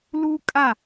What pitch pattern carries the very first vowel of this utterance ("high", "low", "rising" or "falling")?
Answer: high